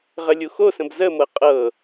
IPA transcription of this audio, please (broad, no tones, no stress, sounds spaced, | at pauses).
ʁ ə lʲ u x o s ə̃ b z ə m ɤ qʼ ɤ